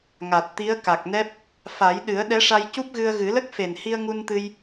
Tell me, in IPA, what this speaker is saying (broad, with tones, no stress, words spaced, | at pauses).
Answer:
ŋa˨˩t̚t̪i˧˥ə̯ ka˨˩k̚nɛ˦˥p̚ | fa˨˩˦jɗɨ˨˩˦ə̯ ɗɛ˧˥ʂa˧jcu˦˥p̚ɣɨ˧ə̯ ɣɨ˨˩˦lə˦˥k̚fe˨˩n hi˧ə̯ŋu˧nt̪ɨ˧j